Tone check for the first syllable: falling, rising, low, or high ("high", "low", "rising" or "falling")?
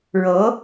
rising